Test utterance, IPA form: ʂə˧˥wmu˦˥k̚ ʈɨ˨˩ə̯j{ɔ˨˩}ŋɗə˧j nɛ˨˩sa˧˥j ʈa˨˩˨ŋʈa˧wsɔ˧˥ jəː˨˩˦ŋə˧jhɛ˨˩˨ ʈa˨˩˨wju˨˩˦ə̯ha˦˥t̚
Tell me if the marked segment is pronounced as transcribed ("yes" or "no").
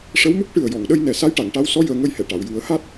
no